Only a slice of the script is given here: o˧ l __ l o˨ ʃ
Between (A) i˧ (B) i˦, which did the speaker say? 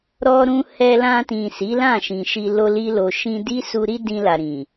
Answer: A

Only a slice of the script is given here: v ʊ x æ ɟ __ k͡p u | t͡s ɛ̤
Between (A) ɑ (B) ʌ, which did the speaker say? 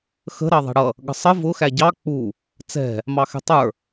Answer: A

